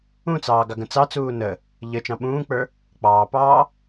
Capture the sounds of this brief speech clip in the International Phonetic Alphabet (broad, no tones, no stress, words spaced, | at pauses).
ũt͡sɑː ɡɑɡə̃t͡sɑt͡suː nə | ʎət͡ʃɑ̃ ɓũːk͡pə˞ | k͡pɑːpɑː